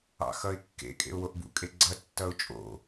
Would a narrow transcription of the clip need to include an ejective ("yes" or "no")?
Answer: yes